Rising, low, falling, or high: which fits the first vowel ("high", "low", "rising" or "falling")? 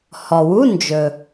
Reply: low